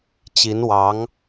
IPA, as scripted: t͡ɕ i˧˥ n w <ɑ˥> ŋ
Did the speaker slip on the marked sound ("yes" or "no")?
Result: yes